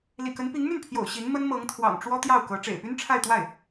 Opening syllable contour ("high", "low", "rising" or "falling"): low